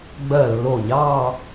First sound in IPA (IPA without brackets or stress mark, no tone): ɡ͡b